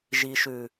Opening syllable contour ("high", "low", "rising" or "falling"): low